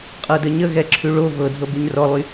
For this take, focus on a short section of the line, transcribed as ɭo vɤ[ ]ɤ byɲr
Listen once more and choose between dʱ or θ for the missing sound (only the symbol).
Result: dʱ